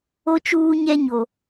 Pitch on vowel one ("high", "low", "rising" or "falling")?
high